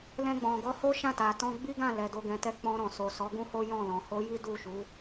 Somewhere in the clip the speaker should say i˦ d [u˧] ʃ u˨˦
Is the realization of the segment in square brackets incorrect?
yes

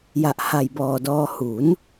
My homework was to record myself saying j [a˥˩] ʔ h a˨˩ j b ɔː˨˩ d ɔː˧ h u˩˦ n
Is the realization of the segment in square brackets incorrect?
yes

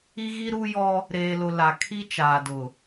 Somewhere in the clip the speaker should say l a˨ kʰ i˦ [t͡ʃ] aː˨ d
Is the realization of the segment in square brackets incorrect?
no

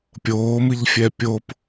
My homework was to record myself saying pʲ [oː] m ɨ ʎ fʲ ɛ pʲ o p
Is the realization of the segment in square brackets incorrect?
no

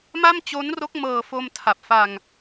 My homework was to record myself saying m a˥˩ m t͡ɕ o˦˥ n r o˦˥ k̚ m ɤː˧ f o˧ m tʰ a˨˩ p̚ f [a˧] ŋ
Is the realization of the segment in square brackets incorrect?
no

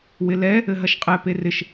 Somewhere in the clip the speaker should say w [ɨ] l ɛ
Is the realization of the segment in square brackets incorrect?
yes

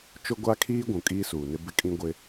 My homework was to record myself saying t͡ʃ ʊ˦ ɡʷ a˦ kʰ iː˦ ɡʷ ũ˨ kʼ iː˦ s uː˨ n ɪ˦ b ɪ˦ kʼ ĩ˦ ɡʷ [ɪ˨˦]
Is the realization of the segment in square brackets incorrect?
yes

